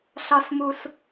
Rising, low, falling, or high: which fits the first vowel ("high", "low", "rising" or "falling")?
high